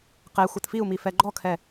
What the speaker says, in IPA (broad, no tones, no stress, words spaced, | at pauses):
qe xʷɯtfiu̯mi fɛɡ͡ǃɔkʰɛ